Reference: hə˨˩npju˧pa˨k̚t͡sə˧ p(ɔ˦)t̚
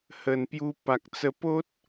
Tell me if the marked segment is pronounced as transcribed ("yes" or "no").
no